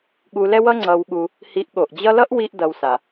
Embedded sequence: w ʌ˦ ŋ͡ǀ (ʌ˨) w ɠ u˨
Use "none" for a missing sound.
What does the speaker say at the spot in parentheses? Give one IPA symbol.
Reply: ʌ˨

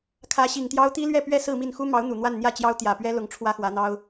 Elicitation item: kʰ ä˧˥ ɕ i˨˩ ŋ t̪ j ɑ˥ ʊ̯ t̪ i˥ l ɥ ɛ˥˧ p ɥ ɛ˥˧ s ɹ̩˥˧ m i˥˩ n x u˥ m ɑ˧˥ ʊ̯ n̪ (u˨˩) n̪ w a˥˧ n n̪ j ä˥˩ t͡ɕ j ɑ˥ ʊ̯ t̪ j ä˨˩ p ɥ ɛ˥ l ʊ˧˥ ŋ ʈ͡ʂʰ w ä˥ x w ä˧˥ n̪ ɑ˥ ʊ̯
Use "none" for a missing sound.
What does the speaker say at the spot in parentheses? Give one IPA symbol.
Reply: u˨˩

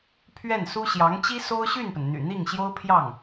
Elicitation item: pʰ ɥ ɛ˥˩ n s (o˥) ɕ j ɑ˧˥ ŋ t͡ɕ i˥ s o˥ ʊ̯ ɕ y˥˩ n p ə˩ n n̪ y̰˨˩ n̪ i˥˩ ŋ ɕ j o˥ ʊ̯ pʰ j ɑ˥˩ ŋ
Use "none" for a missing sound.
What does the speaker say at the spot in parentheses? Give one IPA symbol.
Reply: u˥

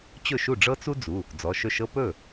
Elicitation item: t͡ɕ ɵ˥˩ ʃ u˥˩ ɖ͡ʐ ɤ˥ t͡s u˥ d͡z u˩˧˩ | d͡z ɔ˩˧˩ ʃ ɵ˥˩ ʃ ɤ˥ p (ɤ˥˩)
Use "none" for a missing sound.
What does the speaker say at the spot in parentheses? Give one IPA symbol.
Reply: ɵ˥˩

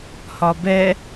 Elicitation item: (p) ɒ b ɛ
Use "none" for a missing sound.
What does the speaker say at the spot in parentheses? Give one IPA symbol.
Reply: h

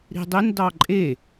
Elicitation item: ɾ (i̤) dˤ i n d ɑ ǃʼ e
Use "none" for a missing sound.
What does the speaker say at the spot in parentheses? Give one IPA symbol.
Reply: i̤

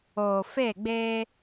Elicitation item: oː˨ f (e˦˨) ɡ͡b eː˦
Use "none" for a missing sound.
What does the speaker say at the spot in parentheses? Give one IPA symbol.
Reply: e˦˨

